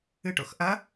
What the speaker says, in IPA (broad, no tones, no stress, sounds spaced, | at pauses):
ɨ ʈ o̰ x ʔ ɐ